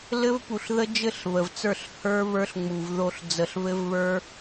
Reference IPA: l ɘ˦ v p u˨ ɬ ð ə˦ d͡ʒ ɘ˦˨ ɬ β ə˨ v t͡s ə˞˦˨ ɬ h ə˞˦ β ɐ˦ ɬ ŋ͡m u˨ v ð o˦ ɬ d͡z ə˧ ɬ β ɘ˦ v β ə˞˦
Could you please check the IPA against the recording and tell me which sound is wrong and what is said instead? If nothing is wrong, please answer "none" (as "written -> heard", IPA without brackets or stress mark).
ɐ˦ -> ə˞˦